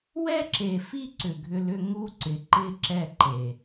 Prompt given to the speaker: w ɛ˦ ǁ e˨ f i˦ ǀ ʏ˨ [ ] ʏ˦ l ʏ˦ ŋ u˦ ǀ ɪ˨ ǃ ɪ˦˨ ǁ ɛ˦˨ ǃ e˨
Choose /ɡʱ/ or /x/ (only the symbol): ɡʱ